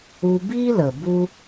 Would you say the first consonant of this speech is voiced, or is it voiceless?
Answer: voiced